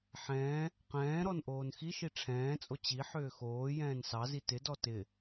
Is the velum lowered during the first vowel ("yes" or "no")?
yes